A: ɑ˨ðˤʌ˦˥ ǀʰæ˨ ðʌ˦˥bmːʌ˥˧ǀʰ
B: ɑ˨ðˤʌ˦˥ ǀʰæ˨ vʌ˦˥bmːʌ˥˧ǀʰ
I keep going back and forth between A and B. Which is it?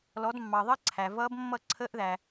B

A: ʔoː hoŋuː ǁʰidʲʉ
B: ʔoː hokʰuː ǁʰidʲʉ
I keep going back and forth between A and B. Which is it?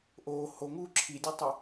A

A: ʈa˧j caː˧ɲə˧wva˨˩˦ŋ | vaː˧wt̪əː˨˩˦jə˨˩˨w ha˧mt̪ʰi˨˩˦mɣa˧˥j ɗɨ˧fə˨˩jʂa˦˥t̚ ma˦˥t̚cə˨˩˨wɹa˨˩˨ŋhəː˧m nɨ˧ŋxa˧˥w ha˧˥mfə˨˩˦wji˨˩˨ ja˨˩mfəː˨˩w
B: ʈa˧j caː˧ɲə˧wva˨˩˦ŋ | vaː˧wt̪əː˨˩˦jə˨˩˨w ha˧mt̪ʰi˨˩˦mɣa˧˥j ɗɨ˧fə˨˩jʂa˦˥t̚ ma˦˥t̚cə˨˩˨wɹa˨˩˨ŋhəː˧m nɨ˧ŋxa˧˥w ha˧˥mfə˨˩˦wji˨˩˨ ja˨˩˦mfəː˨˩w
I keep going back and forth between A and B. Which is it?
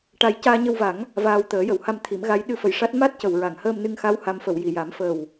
B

